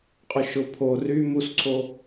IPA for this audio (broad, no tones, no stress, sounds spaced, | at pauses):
qʼ ʊ ʃ ʊ pʰ o r y m u s ǀʰ o